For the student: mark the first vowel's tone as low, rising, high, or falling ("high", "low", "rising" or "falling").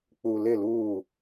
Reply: low